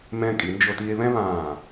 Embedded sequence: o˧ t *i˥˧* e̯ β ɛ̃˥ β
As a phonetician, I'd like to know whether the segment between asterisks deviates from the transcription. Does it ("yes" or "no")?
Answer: yes